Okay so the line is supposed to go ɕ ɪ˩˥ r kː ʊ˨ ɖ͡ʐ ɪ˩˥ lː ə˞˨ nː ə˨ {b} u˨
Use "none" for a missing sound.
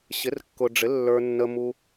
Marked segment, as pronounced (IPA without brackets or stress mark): m